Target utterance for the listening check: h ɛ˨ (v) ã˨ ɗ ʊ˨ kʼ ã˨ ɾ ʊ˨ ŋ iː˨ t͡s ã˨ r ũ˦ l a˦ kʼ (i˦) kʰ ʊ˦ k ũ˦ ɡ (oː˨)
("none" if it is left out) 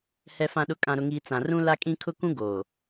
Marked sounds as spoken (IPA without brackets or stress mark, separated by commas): f, ĩ˦, oː˨